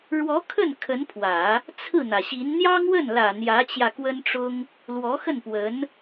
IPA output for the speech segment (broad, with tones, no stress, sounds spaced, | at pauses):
ɻ w ɔ˧˥ kʰ ə˥˩ n kʰ ə˧˥ n pʰ w ä˨˩˦ | t͡sʰ ɹ̩˥˩ n̪ ä˩ ɕ i˧˥ n n̪ j ɑ˥ ŋ w ə˥˩ n l ä˨˩ n̪ j ä˧˥ t͡ɕ j ä˧ k w ə˥ n ʈ͡ʂ ʊ˥ ŋ | l w ɔ˧˥ x ə˥˩ n p w ə˧˥ n